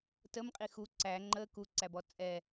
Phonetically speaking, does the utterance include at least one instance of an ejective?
yes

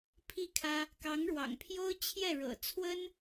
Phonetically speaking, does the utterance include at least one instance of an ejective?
no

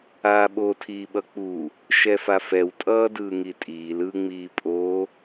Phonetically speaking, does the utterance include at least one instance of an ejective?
yes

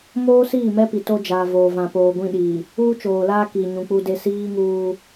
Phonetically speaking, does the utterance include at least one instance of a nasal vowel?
yes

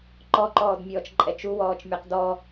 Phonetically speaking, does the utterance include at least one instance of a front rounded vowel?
no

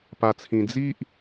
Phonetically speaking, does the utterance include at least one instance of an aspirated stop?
yes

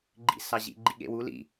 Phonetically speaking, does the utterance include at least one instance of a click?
yes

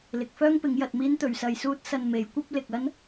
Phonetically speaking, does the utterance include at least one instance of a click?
no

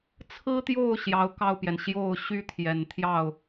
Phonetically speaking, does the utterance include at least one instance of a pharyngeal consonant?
no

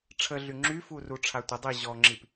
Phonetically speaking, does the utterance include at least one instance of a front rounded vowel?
yes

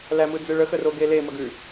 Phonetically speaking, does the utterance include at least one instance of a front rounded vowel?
no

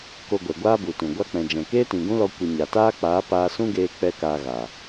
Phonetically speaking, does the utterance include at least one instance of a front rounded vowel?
no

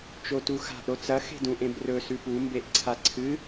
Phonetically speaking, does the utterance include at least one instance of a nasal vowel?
yes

